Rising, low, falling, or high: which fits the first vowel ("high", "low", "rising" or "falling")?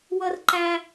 high